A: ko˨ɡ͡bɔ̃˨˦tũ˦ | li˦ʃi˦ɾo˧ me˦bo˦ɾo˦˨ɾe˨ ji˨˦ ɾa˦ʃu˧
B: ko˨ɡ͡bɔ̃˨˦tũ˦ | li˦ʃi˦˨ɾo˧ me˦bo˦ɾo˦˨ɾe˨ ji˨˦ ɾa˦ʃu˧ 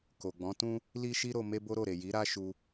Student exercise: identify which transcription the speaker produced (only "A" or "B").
A